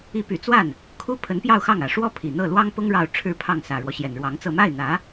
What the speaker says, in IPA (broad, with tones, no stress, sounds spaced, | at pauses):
i˧˥ p y˨˩ t͡s w a˥˩ n | kʰ u˥ pʰ ə˧˥ n p j ɑ˥˧ ʊ̯ x ɑ˥˩ ŋ ä˨˩ ʂ w ɔ˥˩ pʰ i˨˩ n̪ ɤ˥˩ l w ɑ˥ ŋ p ʊ˥ ŋ ɻ ɑ˥˧ ʊ̯ ʈ͡ʂʰ ɻ̩˥˧ pʰ ɑ˥˩ ŋ s ä˨˩ ɻ w ɔ˦ ɕ j ɛ˨˩ n ɻ w ɑ˧˥ ŋ t͡s ɤ˥˧ m a˥˩ ɪ̯ n̪ ä˧˥